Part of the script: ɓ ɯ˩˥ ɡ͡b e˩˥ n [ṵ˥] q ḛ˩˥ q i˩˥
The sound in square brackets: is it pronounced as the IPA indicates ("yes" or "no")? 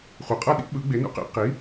yes